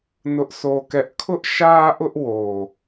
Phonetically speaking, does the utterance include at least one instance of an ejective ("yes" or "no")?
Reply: no